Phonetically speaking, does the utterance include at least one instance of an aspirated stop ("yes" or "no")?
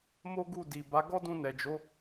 no